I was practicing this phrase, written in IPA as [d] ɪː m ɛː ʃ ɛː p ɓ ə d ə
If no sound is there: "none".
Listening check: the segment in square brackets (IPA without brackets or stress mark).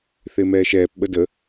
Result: θ